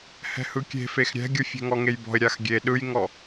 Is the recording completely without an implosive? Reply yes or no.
no